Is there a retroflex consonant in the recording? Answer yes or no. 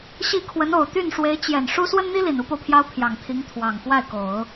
yes